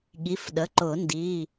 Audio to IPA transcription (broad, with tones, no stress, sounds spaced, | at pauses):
ɠ i˩˧˩ f ɗ ə˩˧˩ ǃ ʊ˨˩˦ n d i˩˧˩